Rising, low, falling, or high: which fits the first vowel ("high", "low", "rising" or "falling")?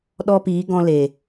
high